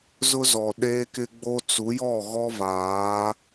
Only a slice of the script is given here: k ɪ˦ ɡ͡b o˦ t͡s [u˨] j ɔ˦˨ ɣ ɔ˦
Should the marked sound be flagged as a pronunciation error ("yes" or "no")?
yes